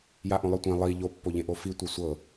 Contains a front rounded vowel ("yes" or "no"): no